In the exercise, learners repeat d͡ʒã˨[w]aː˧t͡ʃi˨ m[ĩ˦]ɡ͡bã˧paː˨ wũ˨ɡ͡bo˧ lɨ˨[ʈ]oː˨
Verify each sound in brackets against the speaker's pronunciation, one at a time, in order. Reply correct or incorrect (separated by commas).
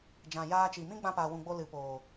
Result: incorrect, correct, incorrect